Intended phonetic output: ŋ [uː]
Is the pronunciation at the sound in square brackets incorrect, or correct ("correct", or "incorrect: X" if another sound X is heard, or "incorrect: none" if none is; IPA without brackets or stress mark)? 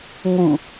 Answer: incorrect: u